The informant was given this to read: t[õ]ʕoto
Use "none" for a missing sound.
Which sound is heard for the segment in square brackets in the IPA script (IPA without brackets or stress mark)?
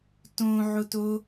õ